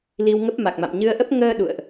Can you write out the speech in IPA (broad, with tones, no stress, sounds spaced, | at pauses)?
l i˧ w ŋ ə˦˥ p̚ m a˨˩ k̚ m a̰˧˨ m ɲ ɨ˧ ə̯ ʔ ə˦˥ p̚ ŋ əː˧ ɗ ṵ˧˨ ə̯ ʔ